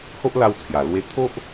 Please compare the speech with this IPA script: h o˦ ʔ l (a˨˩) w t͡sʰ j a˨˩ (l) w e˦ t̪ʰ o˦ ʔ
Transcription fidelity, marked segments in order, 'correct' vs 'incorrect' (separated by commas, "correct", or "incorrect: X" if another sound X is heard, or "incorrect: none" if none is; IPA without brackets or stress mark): incorrect: a˧, correct